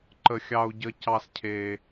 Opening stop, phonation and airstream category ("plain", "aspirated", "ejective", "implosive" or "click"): click